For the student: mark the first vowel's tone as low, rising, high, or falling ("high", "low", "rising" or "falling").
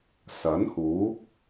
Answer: rising